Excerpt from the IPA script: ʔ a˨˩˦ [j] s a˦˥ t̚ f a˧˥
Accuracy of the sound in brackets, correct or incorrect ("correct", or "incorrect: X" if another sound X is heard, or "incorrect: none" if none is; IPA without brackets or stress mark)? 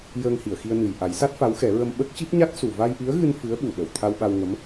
correct